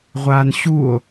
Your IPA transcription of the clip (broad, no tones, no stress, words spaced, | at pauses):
ʁʷaːnɕuo̯